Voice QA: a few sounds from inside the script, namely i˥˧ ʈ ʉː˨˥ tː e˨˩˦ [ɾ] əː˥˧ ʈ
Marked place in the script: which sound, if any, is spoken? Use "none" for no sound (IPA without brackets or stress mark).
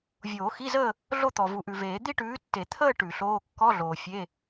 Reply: t̪ʰ